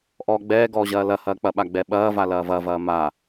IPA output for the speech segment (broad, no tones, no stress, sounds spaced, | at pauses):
ʔ ɔː ɡ͡b ɛː ɡ ɔː ʑ ɐː l ɐ h ɐː k͡p ɐ ɓ a ɡ͡b ɛ ɓ ɐː v a l ɐː v ɐ v ɐː m a